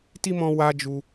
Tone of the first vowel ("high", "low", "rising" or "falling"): high